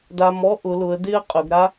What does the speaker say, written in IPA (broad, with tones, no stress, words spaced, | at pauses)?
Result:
da˧m ɔ˥ʔʊ˩˧lʊ˩˧ə̯ dɪ˥ə̯qʼʊ˩˧ɡɾa˥